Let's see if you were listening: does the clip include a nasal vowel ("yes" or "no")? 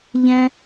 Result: yes